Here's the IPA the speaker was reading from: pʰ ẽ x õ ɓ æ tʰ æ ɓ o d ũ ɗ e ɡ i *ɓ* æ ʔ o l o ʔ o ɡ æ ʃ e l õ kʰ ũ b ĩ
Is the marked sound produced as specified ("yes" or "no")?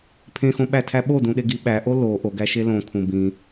yes